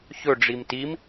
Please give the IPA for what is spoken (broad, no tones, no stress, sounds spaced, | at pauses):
ç ɵ ɖ͡ʐ i m t i m